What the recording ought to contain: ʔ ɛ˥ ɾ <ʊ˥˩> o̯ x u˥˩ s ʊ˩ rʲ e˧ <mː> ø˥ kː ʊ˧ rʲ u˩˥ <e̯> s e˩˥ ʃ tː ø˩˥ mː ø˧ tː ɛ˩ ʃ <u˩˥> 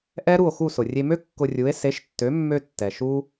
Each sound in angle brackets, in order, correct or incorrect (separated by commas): incorrect, incorrect, correct, incorrect